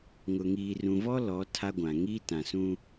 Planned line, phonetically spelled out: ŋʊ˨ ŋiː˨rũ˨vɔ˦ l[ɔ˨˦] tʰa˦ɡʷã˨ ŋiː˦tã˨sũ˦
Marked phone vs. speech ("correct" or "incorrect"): correct